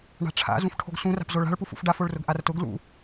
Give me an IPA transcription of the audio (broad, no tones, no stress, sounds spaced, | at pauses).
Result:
ɳ a̤ ʈ͡ʂʰ a̰ z ũ f ʈʰ o̤ ɡ s ũ r a̤ p z o ɭ a̤ ɭ p u f ṵ f ɖ a f o ɭ r ʊ ɡ ʔ a r t ʊ ɡ l ṵ